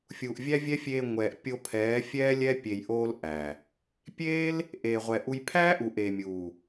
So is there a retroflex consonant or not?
no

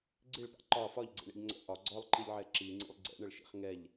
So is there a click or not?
yes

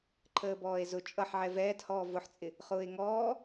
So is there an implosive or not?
no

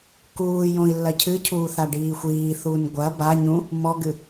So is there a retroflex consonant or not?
yes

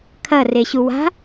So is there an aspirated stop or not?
yes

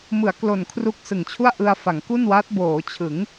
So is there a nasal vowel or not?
no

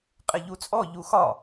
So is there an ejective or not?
yes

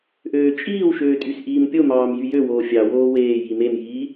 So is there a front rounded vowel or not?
yes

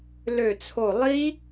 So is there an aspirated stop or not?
yes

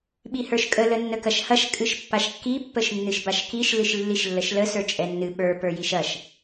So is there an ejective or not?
yes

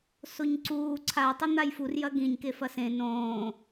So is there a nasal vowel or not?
yes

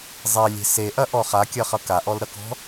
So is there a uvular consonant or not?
yes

